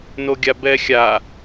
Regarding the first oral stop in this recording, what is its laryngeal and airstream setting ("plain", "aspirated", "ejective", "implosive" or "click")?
plain